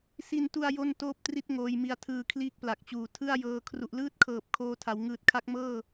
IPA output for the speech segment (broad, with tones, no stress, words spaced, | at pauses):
si˧ntu˧a̯ jo˥˩n toː˥˩p̚tri˥˩t̚ ŋoː˧jmi˧a̯tʰɯː˧ kʰliː˥˩k̚pla˨˩k̚t͡ɕuː˨˩ tʰɯ˥˩a̯jɤː˧ kʰru˨˩ʔlɯː˥˩t̚kʰɤː˨˩p̚ kʰoː˧tʰa˩˦w ŋɯː˨˩t̚kʰa˦˥k̚mɤː˥˩